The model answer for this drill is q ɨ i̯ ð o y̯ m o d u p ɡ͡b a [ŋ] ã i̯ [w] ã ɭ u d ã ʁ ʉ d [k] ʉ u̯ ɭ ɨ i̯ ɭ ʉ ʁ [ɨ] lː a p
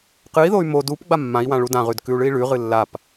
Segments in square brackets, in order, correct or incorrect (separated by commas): incorrect, correct, correct, correct